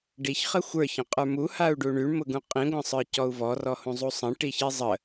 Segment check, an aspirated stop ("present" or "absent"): absent